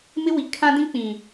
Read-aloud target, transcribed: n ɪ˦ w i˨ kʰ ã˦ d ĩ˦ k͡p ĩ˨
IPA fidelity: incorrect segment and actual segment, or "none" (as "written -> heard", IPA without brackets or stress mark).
n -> m